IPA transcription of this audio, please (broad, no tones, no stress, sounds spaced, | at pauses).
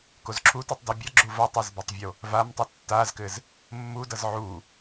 k o z ǁʰ u t u tˤ d u bʲ ʌ ɡ͡ǁ u v ʌ tˤ ɘ z b ɘ tˤ vʲ o | v a m tˤ u tː a z k ɘ z | mː u d ʌ z ʕ u